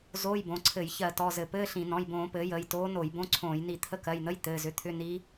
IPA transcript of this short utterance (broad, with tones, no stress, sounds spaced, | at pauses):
z oː˧˥˧ j b õ˩˧˩ ǀʰ ɘ˧˩˧ j ç ɜ˧˩˧ t ɔ˩˧˩ z ɘ˧˩˧ p ɘː˧˥˧ ɬ ĩ˧˩˧ n ɔ̃˩˧˩ j b õː˧˩˧ p ɘː˩˥ j əː˩˧˩ j t oː˧˥ n o˧˩˧ j b õ˧˥˧ ǀʰ õː˧˩˧ j n i˧˩˧ t̪ʰ ə˧˥˧ k ɜ˩˧˩ j n̪ ə˧˥˧ j t̪ ɘː˩˧˩ z ʏ˩˥ t̪ʰ ʏ˧˥˧ n i˧˥